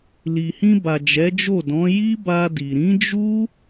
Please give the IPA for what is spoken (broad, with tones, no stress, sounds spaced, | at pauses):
l i˨ h ĩ˧ b a˨ d͡ʒ ɛ˨˦ d͡ʒ o˦˨ d ɔ̃˨˦ j i˦ b a˧ d i˨ ɾ ĩ˨˦ d͡ʒ u˦